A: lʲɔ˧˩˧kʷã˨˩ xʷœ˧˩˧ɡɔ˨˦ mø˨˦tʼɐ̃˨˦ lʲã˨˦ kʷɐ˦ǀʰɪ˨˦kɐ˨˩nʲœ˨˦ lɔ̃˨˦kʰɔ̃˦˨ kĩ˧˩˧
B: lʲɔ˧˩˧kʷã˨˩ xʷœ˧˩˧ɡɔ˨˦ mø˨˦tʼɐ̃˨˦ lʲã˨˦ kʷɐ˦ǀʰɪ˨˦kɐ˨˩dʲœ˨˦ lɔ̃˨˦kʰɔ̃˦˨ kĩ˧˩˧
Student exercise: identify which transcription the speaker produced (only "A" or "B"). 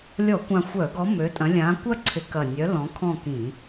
A